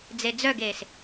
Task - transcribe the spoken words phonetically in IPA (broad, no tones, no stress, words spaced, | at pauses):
d͡zed͡zœɡeːs